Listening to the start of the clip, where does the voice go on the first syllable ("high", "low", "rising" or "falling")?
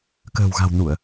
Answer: low